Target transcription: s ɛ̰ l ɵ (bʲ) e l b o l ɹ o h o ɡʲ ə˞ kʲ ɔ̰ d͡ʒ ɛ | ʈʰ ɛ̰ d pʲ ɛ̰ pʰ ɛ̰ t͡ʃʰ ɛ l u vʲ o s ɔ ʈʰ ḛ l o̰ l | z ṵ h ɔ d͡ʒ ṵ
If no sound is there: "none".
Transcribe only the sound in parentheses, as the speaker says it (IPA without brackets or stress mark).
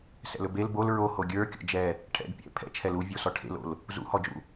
b